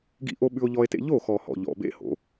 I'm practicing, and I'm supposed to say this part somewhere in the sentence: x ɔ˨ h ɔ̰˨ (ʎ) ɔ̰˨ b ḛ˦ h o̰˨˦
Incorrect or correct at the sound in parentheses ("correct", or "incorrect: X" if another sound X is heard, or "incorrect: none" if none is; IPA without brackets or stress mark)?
correct